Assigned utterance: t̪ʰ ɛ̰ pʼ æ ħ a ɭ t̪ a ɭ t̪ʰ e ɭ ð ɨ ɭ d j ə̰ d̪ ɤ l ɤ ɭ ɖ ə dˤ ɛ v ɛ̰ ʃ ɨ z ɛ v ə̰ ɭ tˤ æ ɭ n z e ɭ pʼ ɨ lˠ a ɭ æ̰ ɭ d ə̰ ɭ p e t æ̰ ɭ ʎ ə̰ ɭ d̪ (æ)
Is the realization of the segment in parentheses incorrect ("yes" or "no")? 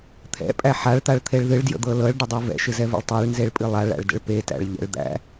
yes